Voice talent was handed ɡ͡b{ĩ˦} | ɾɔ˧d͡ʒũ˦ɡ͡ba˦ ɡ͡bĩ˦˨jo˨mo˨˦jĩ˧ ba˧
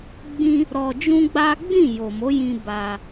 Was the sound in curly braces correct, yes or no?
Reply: yes